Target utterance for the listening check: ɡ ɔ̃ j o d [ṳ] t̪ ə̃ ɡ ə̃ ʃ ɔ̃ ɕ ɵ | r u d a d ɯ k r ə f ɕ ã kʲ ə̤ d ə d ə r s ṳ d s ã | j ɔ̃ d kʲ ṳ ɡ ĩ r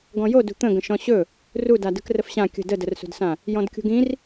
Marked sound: correct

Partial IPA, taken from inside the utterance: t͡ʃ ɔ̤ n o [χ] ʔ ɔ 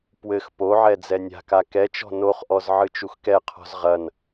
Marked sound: correct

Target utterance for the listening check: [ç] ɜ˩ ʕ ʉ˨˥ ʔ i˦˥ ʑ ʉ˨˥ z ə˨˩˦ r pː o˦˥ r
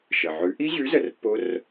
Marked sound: incorrect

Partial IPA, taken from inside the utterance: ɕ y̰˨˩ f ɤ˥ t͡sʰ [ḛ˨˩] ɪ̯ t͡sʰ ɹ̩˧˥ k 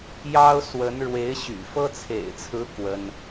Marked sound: correct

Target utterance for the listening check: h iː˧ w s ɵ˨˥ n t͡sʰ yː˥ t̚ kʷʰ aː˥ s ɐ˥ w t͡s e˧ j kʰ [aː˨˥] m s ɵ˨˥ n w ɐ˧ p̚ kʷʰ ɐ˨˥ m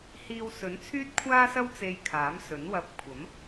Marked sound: correct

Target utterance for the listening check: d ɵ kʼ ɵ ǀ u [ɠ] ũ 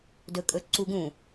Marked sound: incorrect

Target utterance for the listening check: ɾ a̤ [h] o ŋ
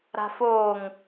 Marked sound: incorrect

